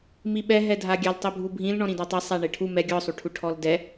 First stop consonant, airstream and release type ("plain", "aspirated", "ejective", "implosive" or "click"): implosive